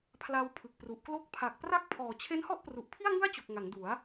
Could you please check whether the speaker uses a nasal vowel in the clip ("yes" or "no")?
no